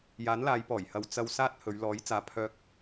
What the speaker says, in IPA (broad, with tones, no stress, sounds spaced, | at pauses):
j aː˨˥ n l aː˨˧ j p ɔː˨˩ j h ɐ˨ w t͡s ɐ˧ w s aː˥ t̚ h ɵ˨˧ ɥ l ɔː˨˥ j t͡s aː˨˧ pʰ œː˧ k̚